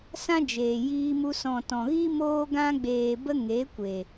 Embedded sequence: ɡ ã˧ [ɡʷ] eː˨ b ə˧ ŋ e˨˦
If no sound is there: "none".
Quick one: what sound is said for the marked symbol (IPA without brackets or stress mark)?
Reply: ɡ͡b